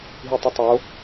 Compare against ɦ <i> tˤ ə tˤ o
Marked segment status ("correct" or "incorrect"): correct